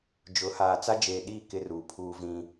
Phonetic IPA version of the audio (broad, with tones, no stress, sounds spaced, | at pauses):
d͡ʒ ʊ˨˦ h aː˨ t͡s a˦ d͡ʒ eː˨ ɗ iː˦˨ k ɪ˦ r uː˨ pʰ uː˦ v ĩ˦